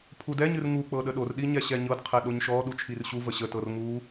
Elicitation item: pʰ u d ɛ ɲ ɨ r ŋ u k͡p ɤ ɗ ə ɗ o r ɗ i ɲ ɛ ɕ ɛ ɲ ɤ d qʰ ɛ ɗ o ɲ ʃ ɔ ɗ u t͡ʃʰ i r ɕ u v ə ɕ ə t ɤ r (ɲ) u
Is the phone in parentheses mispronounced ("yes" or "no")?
yes